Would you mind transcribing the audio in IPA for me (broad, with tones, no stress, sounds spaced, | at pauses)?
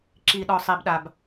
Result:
ǁ i˨ ɗ ɔ˨ sˤ i˨ b ɗ a˨ b